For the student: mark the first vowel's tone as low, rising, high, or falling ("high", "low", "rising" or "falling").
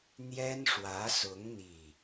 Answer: high